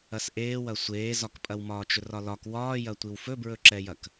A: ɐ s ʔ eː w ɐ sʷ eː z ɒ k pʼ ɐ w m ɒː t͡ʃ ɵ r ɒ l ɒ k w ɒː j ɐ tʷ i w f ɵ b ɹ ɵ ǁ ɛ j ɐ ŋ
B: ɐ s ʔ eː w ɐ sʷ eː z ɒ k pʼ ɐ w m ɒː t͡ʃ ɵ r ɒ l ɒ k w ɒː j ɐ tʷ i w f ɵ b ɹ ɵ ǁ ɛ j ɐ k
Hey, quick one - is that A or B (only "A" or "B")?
B